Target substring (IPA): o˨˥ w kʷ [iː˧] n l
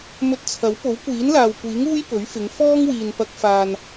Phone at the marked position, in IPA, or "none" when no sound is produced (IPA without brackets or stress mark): iː˨˥